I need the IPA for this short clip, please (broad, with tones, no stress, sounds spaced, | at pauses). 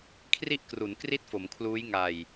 kʰ r i˥˩ ʔ k r u˩˦ n k r i˥˩ t̚ f o˩˦ m kʰ l uː˦˥ j ŋ a˨˩ j